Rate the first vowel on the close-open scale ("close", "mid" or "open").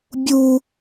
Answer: close